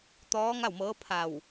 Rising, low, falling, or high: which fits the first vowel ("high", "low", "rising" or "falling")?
rising